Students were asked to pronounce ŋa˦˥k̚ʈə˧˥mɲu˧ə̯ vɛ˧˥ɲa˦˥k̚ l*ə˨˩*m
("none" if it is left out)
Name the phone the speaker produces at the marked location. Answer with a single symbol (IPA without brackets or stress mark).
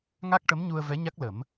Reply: ə˨˩˦